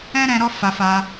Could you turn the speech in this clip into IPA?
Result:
ɛ̃˦ ɾ ɛ̃˧ ɾ ɔ˦ f a˧ f a˧

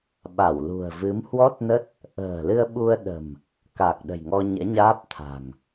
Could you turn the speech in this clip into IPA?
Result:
ɓ a˧˩ w l ṳ˨˩ ə̯ v ɨ˨˦ m h w ɔ˦˥ t̚ n ə˦˥ t̚ | ʔ ə̤ː˨˩ l ɨ˧ ə̯ ɓ u˧ ə̯ ɗ ə̤˨˩ m | k a˨˩ k̚ ɗ ə̤˨˩ j ŋ ɔ˧ ɲ ɛ̰˧˥ ɲ aː˦˥ p̚ t̪ʰ a̤˨˩ ŋ

